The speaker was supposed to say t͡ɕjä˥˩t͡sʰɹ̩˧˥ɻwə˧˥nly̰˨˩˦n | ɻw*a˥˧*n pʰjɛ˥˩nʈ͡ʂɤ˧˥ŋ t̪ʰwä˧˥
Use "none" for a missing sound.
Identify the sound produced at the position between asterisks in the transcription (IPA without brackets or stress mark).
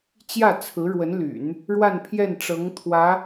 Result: a˥˧